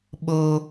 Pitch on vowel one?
high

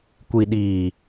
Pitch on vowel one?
low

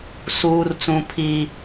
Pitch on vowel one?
high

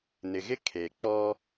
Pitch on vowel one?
low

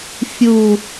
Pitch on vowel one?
falling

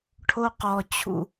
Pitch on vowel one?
high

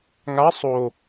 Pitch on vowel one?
rising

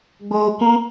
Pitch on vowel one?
low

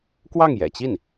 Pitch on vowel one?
falling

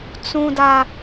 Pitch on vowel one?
high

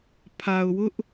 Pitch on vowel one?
low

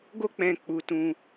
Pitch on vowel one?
high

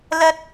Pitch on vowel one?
low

